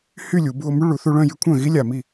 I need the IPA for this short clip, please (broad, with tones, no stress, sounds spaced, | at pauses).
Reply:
h y˥˧ lʲ u˩˧ b u˧ o̯ m y˦˥ ɭ u˩˧ θ u˧ ɭ œ̃˥˧ j y˧ kʷʰ œ̃˥˩ ɣ i˦˥ lʲ a˨˩ m i˥˩